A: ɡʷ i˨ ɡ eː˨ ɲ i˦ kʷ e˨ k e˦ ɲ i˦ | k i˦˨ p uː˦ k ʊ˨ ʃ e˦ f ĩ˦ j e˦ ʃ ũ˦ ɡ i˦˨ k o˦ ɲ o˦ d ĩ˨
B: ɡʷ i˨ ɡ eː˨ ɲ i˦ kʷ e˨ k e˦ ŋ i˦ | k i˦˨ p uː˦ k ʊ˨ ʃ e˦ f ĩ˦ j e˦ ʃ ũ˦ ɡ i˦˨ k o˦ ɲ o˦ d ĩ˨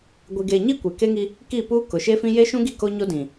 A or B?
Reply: B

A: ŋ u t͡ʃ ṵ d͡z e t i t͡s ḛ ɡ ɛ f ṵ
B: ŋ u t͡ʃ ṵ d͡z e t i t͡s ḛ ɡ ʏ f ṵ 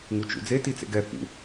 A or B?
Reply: A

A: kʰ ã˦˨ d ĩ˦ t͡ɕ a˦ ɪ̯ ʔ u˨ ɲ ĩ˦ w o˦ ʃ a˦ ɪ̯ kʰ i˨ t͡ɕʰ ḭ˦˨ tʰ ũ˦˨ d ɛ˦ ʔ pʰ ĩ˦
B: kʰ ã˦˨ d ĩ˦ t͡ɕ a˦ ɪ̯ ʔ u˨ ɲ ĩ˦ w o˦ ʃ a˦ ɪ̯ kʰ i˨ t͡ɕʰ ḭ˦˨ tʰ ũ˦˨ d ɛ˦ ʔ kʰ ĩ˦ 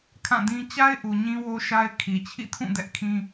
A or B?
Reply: B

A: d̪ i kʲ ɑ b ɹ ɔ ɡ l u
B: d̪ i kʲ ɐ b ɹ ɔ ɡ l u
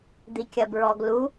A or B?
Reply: B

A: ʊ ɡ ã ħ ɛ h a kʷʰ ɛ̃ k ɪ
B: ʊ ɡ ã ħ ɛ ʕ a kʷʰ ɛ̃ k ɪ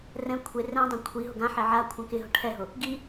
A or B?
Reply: B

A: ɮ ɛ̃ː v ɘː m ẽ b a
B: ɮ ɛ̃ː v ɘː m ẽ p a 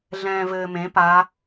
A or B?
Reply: B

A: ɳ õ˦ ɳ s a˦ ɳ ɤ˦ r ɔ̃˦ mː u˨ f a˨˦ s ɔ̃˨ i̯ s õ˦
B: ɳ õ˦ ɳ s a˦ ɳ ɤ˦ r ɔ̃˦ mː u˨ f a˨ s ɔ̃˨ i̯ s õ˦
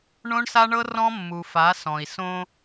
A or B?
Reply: A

